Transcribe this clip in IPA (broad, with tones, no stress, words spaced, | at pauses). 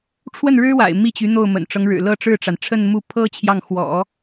ʈ͡ʂʰwə˥˩nɻɻ̩˥wa̰˨˩ɪ̯ mi˥˩t͡ɕy˧˥ n̪o˥˩ʊ̯mə̰˨˩nʈ͡ʂɤ˦ŋ ɻɻ̩˨˩lɤ˥˧ʈ͡ʂɻ̩˥˩ʈ͡ʂa˩n ʈ͡ʂʰə˥˧nmu˥˩ pʰɤ˥ t͡ɕʰjɑ˥˩ŋxwɔ̰˨˩˦